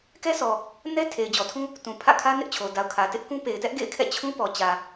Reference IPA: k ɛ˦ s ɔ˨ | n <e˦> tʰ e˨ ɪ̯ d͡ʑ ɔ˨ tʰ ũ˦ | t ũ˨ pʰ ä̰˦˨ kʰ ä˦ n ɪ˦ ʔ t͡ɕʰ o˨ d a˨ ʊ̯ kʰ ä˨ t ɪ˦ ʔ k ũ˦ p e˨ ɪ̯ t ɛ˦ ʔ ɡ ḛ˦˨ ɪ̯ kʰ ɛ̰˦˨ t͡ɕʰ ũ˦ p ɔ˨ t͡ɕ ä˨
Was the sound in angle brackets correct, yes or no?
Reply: no